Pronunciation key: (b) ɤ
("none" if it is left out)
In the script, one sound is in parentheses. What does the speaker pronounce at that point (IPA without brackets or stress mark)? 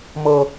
m